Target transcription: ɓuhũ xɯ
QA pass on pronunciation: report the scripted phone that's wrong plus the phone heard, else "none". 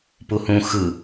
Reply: ɓ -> p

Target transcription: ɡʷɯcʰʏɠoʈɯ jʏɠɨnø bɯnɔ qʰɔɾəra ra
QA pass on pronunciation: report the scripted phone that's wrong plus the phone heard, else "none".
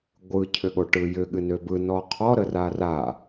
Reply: none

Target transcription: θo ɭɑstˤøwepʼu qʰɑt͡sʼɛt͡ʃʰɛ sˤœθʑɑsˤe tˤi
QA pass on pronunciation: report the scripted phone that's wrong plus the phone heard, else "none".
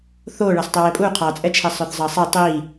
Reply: ʑ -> zˤ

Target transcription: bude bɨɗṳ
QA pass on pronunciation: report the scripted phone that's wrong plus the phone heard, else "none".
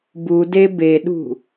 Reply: ɨ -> e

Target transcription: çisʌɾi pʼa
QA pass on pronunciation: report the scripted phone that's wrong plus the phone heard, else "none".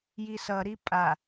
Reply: ç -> j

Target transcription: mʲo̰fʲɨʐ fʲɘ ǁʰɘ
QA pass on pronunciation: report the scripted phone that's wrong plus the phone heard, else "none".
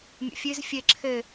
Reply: ʐ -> z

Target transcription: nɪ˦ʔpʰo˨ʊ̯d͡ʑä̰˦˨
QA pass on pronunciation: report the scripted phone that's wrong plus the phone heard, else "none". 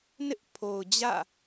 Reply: none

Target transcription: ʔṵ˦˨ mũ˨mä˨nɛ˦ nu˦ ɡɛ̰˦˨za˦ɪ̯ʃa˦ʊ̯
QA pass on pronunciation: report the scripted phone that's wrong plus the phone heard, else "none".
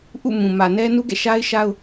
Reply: z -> ʃ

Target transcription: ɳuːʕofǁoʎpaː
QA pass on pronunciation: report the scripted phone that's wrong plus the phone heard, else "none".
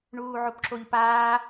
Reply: f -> p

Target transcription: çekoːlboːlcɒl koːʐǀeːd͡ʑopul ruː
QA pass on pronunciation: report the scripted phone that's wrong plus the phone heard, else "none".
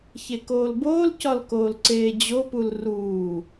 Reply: ʐ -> l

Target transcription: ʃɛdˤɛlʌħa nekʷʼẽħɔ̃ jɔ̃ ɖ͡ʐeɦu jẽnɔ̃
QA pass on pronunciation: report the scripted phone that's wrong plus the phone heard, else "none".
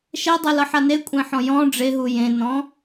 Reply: none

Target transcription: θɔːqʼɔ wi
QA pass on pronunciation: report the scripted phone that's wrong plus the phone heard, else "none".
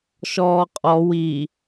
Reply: θ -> ʃ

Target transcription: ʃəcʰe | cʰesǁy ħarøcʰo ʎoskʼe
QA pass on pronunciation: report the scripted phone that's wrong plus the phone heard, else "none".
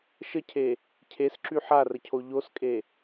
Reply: ø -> ə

